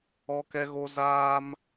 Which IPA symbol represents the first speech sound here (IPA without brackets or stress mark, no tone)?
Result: ɔ